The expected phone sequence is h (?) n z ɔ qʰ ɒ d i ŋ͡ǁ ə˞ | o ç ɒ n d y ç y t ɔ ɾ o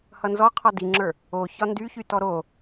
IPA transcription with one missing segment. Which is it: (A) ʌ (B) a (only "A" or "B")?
A